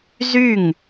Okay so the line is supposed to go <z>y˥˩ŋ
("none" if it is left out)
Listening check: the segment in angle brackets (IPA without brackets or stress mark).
z